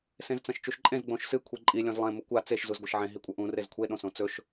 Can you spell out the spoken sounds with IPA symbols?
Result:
sẽzt͡sɐ̃ʃt͡ʃuʃǃʼẽz ɡ͡bõʃsɨ kʷʰiǃʼi lʲõzlˠẽ mukʷa t͡seʃ zuzɡʷɐʃʕẽ ɦikʷʼɐʔũ rezkʷʰe ɗõsõt͡sɵʃ

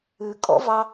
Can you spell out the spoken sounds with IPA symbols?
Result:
ʉkʼɔ̰vɑ

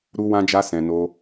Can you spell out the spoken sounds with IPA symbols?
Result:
ɾu˦wã˦d͡ʒa˦ sɛ̃˧no˦

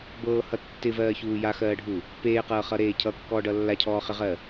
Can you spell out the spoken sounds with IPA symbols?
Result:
bɤːhʌ tːɪvɜːçuː jaxɜːɖʱu | peːqɤːχʌɾeː cʰʌkːɔːɖʌ lːacʰɔːχɪʁɜ

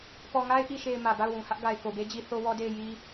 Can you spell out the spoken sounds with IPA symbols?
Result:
pɔ˨ŋa˦ɪ̯ʔi˨ʃe˨ɪ̯ mä˨ba˦˨ʊ̯wũ˨hä˦ʔ ɡa˨ɪ̯ko˨be˦d͡ʑi˦ θo˦wɔ˦de˦˨ɪ̯ ji˦

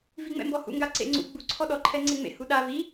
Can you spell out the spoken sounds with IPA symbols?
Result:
viŋ͡mɛ̰mbɔhṵ ŋɡaǀḛŋ͡ǀṵ ɡ͡bu ǀʰɔɗɔ ǃʰɛŋ͡ǀeŋ͡mḛ huɗa vi

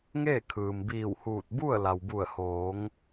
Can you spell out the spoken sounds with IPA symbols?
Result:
ŋeː˥˨kʰɯː˩m biː˧˩whuː˧˩t̚ bu˥˨ə̯ la˩wbu˧˩ə̯hoː˩˧ŋ

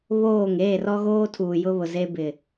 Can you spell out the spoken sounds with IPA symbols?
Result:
βoː˦˨ŋ eː˦˨rɔ˦ɣoː˦ tʰuː˨ jʊ˦βʊ˨ze˦bɪ˨

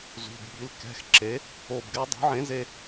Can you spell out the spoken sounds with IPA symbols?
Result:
zṳ˩˧˩bɓi˩˥lkɛ̤˩˧˩xǁe˩˥ | o˧˩bɡɛ˥ dˤṳ˩˥ʕẽ˩˥ze˩˧˩

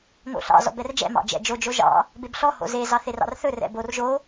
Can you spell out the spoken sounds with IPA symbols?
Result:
ŋo̰ɬɑ̰ zɔ̰bɛrd͡ʒɛ̰ mɑ̰d͡ʒɛ̰d͡ʒo d͡ʒoʒɑ̰ | bebɬɔ ho̰ze zɑθerɑ̰rθɵ rɛ̰bor ʒo

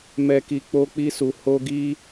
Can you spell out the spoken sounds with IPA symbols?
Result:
mɛ˧ki˧ k͡po˦k͡pi˦su˧ ho˦ɡi˦

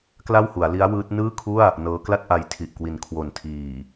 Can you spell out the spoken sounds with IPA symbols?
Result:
kla˥˩whu˩˦a̯li˦˥a̯ wɯː˦˥t̚ nɯː˥˩kʰu˥˩a̯ | nɤː˦˥ kla˥˩t̚ ʔa˧jtʰi˨˩ʔkwi˨˩n kʰwo˨˩ntʰiː˨˩

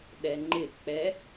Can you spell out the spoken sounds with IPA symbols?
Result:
ɗɛŋ͡ǃɪk͡pɛ

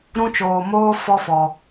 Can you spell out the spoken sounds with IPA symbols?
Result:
ɾũ˦t͡ʃoː˧moː˦ fɔ˦fɔ˧

